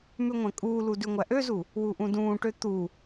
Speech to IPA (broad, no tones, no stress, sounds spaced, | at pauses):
m ʉ ŋʷ ɛ̃ kʼ uː l u d ʉ ŋʷ æ ʔ ø z u | w u ʔ ũ d ũː ʈ ø t̪ u